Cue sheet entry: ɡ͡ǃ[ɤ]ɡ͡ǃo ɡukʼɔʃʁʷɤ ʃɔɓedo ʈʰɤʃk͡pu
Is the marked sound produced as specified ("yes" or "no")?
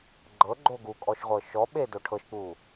yes